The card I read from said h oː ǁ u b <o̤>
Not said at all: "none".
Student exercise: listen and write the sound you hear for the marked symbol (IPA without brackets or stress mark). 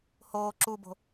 o̤